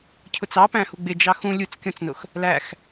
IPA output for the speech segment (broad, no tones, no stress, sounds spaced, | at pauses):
cʰ ʊ t͡s ɑ p æ̃ h u ɡ͡b ɪ d͡ʒ ɑ x ũ lʲ u t͡s kʲ ɔ̃ t͡s n ʊ x | l æ x